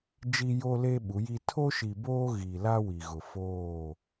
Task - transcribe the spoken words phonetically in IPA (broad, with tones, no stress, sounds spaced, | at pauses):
d͡ʒ i˦ j o˦ l e˦ ɓ u˨˦ j i˦ tʰ o˦ ʃ i˨ b oː˦ ɣ i˨ l a˦ w i˨ ɣ ʊ˨ f oː˦˨